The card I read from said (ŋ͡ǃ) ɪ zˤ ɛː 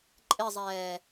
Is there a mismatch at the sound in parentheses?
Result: yes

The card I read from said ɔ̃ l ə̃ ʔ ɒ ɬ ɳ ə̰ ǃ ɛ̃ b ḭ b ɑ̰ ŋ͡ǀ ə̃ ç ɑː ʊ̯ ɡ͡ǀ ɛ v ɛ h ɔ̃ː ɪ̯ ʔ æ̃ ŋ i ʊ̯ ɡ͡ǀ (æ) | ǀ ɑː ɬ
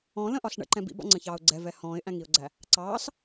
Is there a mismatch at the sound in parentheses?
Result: no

